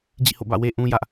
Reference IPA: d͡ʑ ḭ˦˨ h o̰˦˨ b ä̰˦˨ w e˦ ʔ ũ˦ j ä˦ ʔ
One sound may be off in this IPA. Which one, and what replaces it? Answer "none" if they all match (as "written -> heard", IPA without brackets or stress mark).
none